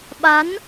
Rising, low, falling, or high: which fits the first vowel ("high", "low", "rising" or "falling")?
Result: rising